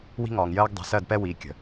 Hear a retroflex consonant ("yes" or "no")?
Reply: no